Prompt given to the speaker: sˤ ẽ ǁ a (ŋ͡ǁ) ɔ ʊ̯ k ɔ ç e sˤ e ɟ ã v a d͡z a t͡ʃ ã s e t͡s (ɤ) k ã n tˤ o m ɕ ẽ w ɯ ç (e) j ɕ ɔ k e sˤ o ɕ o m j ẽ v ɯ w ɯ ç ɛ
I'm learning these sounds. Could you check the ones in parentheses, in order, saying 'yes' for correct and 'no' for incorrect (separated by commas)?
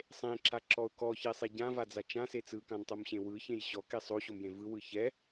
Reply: no, no, no